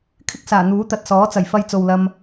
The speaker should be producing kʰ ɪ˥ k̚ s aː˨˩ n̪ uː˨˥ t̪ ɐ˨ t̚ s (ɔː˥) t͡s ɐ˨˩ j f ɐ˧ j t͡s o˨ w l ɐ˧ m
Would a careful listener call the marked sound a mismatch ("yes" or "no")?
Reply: yes